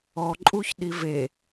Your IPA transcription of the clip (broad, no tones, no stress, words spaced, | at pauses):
ɔǃʼuçɗi ve